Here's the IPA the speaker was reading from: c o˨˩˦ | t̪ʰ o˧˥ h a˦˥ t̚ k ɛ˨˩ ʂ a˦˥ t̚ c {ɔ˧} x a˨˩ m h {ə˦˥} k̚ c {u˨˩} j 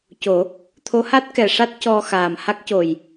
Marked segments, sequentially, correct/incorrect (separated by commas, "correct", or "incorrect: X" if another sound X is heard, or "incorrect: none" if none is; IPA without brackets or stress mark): correct, incorrect: a˦˥, incorrect: o˨˩